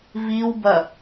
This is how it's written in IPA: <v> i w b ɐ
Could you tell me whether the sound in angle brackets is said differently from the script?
no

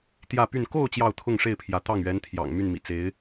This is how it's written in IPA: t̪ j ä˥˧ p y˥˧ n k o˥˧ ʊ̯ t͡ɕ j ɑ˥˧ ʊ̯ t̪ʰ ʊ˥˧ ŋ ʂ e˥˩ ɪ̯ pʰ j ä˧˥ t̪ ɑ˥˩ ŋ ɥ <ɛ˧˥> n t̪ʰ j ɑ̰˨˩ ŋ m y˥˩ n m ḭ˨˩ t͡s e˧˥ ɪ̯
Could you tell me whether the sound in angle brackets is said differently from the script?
no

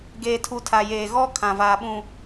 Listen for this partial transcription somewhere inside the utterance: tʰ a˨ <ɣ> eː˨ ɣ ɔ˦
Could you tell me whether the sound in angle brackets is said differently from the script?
yes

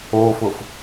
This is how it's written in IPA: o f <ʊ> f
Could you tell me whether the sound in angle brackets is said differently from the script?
no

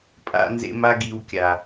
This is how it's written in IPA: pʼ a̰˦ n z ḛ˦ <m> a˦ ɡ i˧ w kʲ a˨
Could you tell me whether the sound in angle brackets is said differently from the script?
no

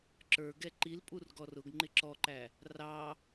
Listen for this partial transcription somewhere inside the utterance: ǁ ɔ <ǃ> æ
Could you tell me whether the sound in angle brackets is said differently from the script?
no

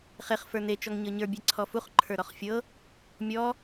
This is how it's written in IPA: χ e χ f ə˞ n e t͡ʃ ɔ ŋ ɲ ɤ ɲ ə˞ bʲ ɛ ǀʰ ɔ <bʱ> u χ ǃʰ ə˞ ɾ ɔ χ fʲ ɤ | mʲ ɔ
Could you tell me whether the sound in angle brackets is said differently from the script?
yes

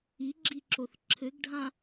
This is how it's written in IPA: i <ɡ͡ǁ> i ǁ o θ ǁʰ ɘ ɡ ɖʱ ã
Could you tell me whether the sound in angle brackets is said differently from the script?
no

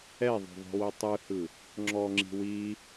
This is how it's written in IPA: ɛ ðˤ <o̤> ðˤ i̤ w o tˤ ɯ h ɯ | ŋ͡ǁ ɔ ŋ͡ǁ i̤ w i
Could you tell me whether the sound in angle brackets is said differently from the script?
no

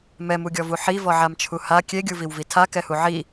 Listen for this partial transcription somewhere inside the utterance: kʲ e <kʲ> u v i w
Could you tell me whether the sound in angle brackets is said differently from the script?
yes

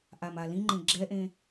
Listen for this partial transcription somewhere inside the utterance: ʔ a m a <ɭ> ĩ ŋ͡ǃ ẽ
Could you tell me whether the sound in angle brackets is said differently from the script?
yes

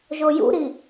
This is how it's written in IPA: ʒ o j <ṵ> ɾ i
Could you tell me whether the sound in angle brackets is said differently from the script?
no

